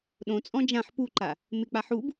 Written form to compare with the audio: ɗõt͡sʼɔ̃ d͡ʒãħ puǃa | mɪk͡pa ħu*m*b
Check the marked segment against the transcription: incorrect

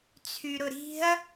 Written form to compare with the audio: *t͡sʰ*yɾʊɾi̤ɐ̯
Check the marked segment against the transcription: correct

